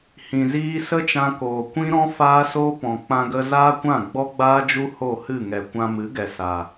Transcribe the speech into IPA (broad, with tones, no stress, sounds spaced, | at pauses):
h ĩ˨ z iː˧ s ə˦ t͡ʃ ã˧ k oː˨ kʷ ĩ˦ ɾ ɔ̃˦ f aː˦ s o˦ p ɔ̃˨ k͡p ã˧ ɡ ə˧ z aː˦ kʷ ã˦˨ ɡ͡b ɔ˦ ɡ͡b aː˦ d͡ʒ u˦ h o˦˨ h ɨ˦˨ ŋ ɛ˨ kʷ ã˧ m ɨ˨˦ ɡ ɛ˨ s a˨